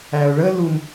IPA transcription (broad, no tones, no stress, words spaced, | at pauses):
æʊ̯ɭə lum